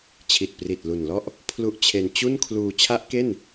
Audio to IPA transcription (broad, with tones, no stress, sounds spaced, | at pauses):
t͡ɕʰ i˨˩ t̚ p r i˨˩ t̚ l u˨˩ n l ɔ˥˩ ʔ | pʰ l u˦˥ ʔ t͡ɕʰ e˧ n t͡ɕ u˥˩ n kʰ l uː˧ t͡ɕʰ a˦˥ ʔ k e˥˩ n